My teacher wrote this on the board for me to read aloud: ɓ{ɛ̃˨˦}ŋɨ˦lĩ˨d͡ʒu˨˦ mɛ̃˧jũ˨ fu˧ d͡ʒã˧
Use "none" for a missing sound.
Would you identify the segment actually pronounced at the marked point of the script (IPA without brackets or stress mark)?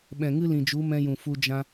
ɛ̃˨